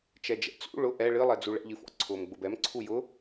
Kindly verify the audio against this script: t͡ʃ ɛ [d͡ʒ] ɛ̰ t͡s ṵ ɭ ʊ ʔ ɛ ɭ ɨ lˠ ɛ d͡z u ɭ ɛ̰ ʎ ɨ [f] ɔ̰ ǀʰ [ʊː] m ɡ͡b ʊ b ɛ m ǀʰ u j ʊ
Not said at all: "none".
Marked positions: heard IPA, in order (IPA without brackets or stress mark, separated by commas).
d͡ʒ, f, ʊː